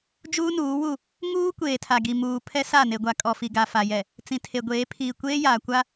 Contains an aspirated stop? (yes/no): yes